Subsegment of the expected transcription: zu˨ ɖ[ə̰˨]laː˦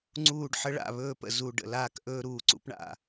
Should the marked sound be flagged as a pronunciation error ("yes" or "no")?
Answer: no